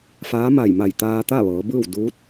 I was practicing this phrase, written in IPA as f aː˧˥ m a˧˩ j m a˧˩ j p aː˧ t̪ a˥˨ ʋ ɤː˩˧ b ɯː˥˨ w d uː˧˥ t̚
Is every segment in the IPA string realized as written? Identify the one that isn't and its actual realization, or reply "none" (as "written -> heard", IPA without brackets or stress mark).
p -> t̪